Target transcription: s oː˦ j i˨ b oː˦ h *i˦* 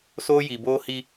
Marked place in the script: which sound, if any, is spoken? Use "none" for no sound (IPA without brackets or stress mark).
i˦